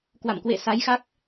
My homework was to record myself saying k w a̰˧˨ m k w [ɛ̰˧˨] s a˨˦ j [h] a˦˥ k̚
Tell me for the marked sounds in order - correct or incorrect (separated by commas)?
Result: incorrect, incorrect